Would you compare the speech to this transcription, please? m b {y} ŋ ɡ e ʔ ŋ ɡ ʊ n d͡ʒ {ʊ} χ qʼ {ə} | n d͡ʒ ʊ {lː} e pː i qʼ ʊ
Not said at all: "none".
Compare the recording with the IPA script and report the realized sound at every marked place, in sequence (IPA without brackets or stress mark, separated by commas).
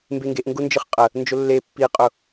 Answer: e, ɯ, ə, lː